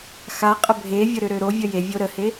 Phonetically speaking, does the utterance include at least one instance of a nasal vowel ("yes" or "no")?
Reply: no